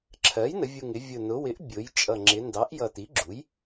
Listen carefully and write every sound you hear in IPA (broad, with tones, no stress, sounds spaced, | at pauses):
ǁʰ ɜ˩˥ j n ə˩˧ vʲ u˨˩ ŋ ɪ˩˧ vʲ ʊ˨˩ n ʊ˩˧ w ɪ˩˥ ʔ bʲ ʊ˩˧ j t͡ʃʼ ʌ˨˩ ŋ͡ǁ ɪ˩˧ n d ɑ˩˥ ʔ j ʌ˨˩ t i˩˥ ɡ͡ǁ u˩˥ j